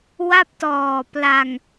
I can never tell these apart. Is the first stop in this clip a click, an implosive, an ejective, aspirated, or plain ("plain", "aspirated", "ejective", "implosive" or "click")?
plain